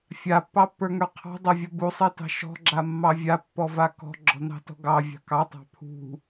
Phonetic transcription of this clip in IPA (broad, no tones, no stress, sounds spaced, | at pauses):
fʲ a pː ɑ pː ə˞ ŋ ə˞ qʰ ɑ̤ dˤ a vʲ ɔ b u sˤ i t ɑ̤ ʃ ɔ̤ ɡ͡ǁ a mː ɑ vʲ a pː ɔ v a k ɔ̤ ɡ͡ǁ ɔ̤ n ɑ̤ t ɔ̤ ɡ ɑ vʲ ɑ̤ k ɑ tˤ ɑ̤ pʰ ṳ